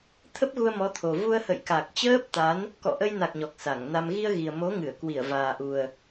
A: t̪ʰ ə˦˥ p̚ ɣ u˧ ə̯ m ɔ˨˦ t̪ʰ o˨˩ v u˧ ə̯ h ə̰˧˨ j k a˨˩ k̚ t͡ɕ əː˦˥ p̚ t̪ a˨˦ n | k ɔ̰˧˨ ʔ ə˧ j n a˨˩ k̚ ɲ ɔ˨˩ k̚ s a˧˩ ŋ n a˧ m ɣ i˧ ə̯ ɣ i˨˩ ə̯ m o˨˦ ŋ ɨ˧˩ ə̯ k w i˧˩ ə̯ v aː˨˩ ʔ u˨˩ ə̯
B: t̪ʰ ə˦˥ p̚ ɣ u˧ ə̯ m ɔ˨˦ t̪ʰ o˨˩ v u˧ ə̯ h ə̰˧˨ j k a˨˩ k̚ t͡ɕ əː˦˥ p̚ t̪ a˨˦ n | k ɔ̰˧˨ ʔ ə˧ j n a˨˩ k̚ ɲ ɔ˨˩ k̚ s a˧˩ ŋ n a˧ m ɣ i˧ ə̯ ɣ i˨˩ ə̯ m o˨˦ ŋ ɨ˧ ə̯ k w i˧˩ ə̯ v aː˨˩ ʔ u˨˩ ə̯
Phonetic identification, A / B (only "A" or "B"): A